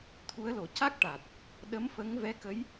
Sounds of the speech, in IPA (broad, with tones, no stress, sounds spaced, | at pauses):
t̪ʰ u˧˥ ə̯ l o˨˩ c a˦˥ k̚ ʈ a˨˩ t̚ | ɗ ə˧˥ m f ə˧˥ ŋ v ɛ˧˥ k ə˧˥ j